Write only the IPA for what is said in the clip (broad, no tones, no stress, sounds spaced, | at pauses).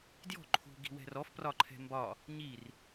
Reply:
d j ɔ̤ ǃʰ ṳ ɡ i̤ w ɛ̤ r ɔ f p r ɒ ǃʰ ɛ̤ m b ɒ | ɲ i r